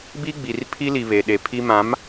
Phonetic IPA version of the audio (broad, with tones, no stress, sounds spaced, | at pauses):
b i˦ ɡ͡b i˨ r pʰ i˦ l i˨ β e˨ ɗ e˨ pʰ i˦ m ã˨˦ m